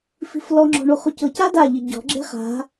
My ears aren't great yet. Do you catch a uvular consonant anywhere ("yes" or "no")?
yes